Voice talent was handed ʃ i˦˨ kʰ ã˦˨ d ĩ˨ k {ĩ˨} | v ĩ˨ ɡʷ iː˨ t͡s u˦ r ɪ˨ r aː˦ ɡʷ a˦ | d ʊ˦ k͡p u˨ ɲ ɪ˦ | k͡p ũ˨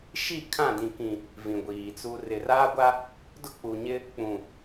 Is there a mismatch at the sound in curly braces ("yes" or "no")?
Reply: no